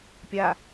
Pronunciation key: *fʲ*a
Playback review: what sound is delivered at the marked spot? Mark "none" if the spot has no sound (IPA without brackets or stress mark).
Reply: pʲ